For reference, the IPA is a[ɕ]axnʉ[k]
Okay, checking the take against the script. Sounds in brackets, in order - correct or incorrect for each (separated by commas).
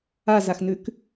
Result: incorrect, correct